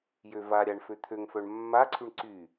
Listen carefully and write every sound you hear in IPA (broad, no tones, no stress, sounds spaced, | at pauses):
j ø v a ɾʲ a ɳ f ø t̪ʰ ø ŋ f œ ɳ mː a ǀʰ y ɳ ǀ y